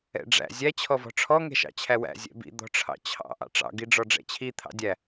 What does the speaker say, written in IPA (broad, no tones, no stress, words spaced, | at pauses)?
ɛ̰ɖ͡ʐæ̰ zʲæ t͡ɕʰɔvɔ̤ʈ͡ʂʰɔ ŋɛ̤ʃɑ̰t͡ɕʰæwæ̰ zʲɛ̰bḭ d̪ɔ̤ʈ͡ʂʰɑ̰t͡ɕʰɑ̰ ʔɑ̰ʈ͡ʂɑ̰ ɡiɖ͡ʐɔɖ͡ʐɛ̰t͡ɕʰi t̪ʰɑ̰dʲæ